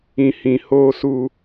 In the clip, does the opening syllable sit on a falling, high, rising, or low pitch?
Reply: low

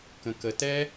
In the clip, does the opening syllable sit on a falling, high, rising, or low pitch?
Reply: low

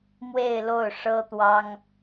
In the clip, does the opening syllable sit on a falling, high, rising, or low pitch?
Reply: falling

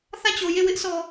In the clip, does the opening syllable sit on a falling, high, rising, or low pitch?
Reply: falling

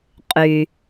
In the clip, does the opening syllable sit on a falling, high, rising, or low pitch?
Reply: low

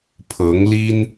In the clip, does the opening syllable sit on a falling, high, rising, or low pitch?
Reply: rising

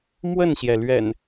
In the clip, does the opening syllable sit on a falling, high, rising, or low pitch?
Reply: falling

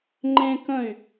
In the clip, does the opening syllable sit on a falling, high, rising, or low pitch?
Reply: high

